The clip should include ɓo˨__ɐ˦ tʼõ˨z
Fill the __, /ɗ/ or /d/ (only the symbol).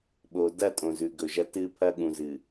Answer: d